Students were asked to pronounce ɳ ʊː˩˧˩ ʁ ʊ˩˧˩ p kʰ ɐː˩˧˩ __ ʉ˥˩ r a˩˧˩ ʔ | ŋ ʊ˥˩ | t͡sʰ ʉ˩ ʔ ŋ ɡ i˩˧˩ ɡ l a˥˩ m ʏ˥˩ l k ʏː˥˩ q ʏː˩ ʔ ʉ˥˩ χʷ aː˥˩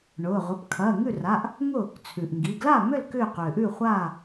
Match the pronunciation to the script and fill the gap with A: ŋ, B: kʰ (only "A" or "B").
A